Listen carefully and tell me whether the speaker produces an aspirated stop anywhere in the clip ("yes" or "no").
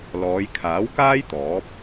yes